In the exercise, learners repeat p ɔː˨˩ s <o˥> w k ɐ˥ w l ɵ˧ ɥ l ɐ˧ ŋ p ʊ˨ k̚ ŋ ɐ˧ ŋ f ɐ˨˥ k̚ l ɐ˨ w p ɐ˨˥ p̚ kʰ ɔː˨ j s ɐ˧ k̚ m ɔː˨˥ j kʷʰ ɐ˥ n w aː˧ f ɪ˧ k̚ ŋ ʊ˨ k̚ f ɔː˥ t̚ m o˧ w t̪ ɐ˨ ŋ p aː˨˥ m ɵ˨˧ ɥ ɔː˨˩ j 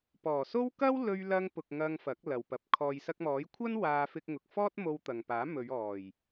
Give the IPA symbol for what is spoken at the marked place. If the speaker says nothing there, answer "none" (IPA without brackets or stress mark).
o˥